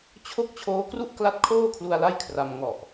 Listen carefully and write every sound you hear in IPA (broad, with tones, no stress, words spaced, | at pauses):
t͡ɕʰo˥˩k̚ t͡ɕʰoː˦˥kru˥˩ʔkla˦˥t̚ kʰoː˥˩kʰlu˧a̯ la˥˩jkʰra˧m ŋɔ˨˩ʔ